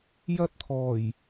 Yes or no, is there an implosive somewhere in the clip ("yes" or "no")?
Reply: no